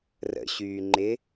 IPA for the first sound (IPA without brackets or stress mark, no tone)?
r